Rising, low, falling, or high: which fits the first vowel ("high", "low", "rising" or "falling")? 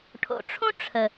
low